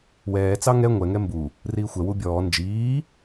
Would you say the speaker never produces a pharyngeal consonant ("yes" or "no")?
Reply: yes